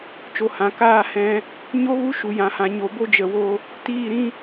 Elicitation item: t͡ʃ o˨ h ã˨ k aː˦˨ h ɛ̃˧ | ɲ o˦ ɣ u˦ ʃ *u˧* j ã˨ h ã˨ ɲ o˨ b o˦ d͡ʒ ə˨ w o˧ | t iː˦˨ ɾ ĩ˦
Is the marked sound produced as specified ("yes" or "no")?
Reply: no